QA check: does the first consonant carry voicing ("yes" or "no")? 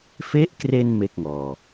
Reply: no